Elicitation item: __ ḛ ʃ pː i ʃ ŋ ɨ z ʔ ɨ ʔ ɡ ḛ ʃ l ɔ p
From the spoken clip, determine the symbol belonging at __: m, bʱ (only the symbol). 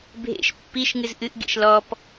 bʱ